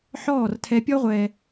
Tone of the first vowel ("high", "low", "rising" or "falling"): falling